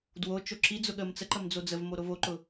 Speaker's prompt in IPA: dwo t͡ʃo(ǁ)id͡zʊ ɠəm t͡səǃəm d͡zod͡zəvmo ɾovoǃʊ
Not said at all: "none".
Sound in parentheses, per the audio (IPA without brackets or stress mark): ǁ